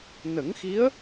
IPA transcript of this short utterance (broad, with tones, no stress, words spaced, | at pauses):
nə˨˩˦ŋxi˧˥ə̯